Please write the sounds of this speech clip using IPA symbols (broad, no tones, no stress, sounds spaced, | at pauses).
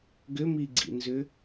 ɡ ʏ m i ɡ͡ǀ ḭ n z ʏ